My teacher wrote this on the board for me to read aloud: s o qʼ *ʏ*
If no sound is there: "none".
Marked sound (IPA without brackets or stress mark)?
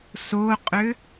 ʏ